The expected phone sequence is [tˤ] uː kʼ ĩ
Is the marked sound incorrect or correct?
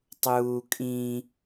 correct